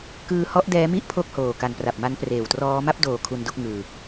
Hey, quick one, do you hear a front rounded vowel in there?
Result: no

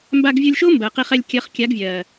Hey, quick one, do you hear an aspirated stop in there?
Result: no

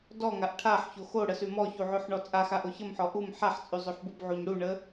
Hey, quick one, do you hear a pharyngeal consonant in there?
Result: yes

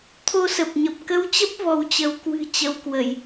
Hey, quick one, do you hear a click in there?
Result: no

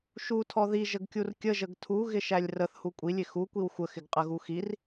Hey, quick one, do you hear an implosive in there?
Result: no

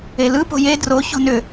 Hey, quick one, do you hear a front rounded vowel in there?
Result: yes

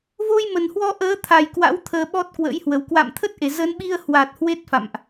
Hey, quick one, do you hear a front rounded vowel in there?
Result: no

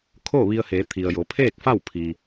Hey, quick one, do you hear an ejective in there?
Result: no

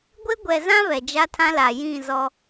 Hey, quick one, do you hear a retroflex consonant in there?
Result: no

